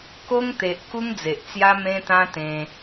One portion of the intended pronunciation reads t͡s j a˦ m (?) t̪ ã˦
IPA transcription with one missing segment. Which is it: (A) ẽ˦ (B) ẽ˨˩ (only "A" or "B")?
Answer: A